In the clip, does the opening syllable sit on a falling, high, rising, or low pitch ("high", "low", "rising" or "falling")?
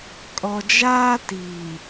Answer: low